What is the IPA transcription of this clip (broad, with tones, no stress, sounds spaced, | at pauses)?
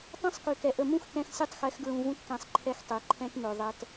tˤ ɛ̃˦ sˤ k ø˨ k ɛ˨ ʔ ə˨ m ũ˦ x k ɛ̃˧ x sʲ ø˦ tˤ x ɛ˨˦ x ɡ ɹ ũ˨ v ũ˦ t k ɛ̃˧ sˤ ǃʰ ɛ˧ x tˤ e˨ ǃʰ ɛ̃˦ t m ø˨ ðˤ ɛ˨ t